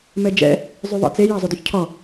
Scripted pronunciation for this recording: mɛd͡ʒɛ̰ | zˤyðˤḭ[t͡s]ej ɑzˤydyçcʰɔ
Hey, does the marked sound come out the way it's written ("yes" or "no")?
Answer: yes